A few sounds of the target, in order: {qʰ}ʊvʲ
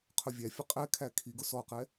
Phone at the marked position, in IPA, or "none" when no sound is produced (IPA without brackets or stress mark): qʰ